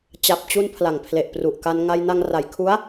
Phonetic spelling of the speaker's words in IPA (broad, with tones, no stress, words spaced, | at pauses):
t͡ɕa˨˩p̚t͡ɕu˧n pʰla˨˩ŋpʰle˨˩ʔpru˨˩ʔka˧n ŋa˧jna˧ŋ ra˩˦jkʰu˦˥a̯